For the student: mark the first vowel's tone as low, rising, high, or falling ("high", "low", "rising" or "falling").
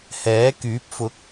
rising